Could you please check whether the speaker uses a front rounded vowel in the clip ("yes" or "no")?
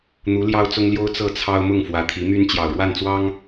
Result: yes